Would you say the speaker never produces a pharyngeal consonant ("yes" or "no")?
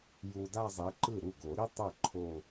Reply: yes